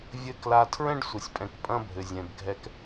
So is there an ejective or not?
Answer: yes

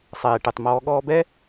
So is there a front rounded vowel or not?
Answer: yes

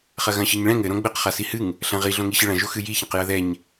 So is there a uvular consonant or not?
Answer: yes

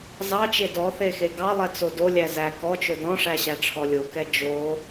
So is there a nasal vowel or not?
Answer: yes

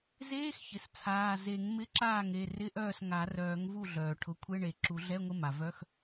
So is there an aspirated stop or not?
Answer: yes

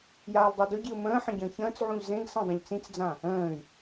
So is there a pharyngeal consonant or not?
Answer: yes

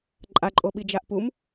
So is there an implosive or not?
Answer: yes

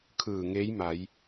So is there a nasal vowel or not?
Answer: no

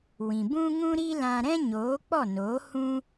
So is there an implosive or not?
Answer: no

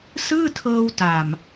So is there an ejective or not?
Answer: no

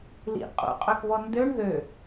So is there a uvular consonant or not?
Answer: yes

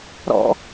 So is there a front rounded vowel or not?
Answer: no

